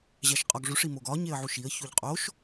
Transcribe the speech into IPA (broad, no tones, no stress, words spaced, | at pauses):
ʑæʃqʼɒɡʐuʂ imoɡɒ ɲeə̯ʕuʃiə̯ çuʎqʼoʃ